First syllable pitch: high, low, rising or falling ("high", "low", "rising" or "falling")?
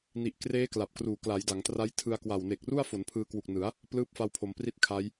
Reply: low